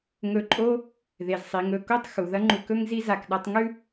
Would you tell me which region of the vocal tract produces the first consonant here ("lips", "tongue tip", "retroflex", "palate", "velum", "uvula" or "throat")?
velum